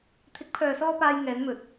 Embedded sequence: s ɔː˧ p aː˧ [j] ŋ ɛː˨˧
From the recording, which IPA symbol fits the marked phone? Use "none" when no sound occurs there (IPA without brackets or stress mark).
j